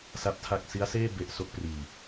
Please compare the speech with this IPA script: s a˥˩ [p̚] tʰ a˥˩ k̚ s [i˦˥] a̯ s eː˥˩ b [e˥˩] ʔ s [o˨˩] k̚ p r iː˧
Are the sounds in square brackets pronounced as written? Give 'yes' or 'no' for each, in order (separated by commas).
yes, yes, yes, no